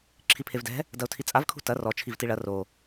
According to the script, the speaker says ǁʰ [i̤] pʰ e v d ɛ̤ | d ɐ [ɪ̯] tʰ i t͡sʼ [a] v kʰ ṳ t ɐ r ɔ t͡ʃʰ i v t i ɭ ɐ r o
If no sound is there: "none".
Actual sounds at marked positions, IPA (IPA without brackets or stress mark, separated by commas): i, ʊ̯, a